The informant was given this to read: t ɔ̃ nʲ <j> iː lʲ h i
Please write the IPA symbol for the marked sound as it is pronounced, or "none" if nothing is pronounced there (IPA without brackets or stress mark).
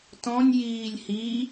j